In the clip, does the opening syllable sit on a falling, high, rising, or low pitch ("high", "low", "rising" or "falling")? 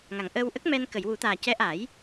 low